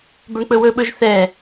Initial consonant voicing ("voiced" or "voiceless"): voiced